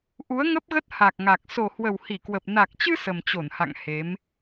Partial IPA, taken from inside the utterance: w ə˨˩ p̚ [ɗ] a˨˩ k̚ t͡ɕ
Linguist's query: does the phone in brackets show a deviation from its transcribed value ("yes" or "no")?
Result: yes